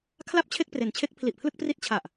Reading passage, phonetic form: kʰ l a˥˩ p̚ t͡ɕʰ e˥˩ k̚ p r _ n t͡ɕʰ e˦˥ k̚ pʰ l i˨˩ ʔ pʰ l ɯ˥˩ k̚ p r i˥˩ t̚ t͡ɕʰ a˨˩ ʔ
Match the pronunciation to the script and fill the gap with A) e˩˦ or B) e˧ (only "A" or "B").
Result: A